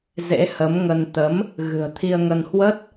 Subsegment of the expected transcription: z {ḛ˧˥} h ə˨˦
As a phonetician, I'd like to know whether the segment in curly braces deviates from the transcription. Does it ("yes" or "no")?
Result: no